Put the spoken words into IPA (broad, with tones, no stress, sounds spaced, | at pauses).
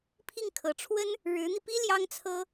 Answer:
pʰ i˥˩ ŋ kʰ ɤ˨˩ ʈ͡ʂʰ w ə˥ n | ɻ ɻ̩˧˥ n̪ i˧ p i˥ l j ɑ˥ ŋ t͡sʰ ɤ˥